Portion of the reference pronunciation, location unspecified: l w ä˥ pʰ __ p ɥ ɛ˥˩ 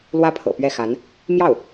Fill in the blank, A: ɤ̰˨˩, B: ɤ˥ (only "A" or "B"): A